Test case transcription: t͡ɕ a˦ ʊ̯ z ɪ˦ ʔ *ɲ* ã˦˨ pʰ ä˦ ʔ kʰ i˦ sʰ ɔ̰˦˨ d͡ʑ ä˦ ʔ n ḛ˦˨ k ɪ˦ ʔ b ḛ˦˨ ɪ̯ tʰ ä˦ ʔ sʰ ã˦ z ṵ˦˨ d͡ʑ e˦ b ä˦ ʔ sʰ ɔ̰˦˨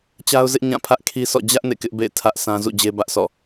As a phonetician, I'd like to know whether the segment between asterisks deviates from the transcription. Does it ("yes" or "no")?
no